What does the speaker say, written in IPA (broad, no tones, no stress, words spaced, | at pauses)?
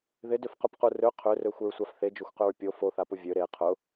ðɪdʏfqʊpqu rø qʰørøxʷɪɹsʷaf θed͡ʒoxʷqʏɹ pʲo foθapʊ vʲø ɾe qʰʊ